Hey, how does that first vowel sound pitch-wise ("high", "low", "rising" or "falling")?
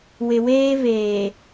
low